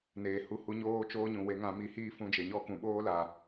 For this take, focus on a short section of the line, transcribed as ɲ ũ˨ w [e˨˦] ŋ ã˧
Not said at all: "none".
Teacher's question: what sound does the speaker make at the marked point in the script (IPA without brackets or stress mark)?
e˨˦